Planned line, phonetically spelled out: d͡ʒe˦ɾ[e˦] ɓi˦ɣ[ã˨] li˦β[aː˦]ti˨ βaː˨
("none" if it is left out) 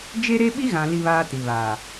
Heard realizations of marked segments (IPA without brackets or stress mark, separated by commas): e˦, ã˨, aː˦